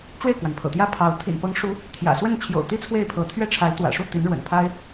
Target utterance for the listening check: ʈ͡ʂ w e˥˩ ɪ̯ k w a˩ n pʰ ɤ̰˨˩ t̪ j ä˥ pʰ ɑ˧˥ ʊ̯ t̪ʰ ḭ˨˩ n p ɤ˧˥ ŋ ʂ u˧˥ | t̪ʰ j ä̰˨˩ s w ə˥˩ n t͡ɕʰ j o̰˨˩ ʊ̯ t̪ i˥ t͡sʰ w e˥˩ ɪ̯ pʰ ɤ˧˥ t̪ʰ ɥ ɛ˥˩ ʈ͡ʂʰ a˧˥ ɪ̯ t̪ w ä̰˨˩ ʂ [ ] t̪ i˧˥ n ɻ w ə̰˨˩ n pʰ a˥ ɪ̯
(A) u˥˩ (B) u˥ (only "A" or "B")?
A